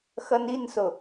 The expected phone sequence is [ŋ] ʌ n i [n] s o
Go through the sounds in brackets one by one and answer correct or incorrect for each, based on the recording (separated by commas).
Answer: incorrect, correct